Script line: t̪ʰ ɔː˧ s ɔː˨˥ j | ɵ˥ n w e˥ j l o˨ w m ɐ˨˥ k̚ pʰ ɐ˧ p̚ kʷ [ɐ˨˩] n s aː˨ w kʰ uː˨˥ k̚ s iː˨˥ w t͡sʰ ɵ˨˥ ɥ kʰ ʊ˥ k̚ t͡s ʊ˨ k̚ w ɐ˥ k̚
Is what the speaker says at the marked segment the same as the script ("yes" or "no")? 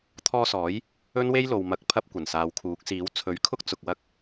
yes